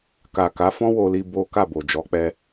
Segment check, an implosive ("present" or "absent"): absent